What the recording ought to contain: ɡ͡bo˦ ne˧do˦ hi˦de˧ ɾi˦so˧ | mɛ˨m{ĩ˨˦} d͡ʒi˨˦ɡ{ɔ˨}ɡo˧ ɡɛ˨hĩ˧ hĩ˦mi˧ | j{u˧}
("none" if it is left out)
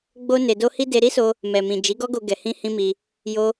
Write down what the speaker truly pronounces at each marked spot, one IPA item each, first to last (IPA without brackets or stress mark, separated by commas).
ĩ˨, ɔ˦, o˧